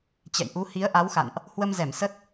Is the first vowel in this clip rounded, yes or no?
no